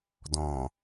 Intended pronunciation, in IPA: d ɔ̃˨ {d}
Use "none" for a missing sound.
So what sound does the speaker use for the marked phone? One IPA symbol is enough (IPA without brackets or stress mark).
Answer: none